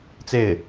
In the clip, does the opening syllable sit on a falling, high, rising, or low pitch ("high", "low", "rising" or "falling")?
falling